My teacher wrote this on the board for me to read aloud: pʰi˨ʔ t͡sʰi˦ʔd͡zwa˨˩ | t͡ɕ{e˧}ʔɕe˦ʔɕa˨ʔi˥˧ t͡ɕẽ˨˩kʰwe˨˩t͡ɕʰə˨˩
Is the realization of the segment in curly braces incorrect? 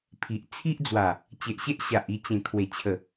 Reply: yes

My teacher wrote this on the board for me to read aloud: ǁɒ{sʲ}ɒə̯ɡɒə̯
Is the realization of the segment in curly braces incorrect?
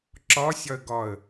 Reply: no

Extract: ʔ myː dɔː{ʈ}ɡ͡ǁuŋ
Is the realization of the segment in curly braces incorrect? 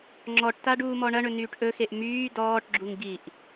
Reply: no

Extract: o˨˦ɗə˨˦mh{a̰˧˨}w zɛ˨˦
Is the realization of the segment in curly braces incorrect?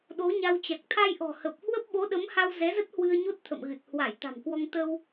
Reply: yes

